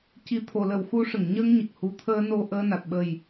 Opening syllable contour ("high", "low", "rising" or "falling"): low